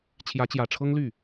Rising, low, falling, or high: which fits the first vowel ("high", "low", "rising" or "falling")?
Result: rising